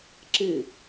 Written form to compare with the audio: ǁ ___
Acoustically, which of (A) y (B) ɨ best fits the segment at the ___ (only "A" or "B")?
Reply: B